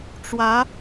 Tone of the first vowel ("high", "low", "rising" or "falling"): rising